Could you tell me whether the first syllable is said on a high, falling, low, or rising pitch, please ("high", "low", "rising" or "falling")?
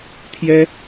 high